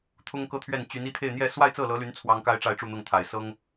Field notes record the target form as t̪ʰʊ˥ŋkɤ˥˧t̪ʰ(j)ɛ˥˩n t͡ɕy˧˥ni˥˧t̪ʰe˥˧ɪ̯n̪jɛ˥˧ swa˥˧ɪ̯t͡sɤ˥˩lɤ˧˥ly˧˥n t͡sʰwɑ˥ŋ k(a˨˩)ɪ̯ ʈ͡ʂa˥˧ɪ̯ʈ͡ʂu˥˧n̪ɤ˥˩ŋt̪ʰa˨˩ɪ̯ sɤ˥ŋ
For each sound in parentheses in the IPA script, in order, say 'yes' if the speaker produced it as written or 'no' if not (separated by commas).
no, no